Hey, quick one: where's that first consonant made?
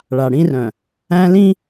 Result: retroflex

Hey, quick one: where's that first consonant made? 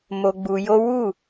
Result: lips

